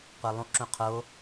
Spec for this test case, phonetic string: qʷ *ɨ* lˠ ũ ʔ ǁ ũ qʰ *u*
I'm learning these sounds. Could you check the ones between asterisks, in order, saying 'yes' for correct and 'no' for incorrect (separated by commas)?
no, no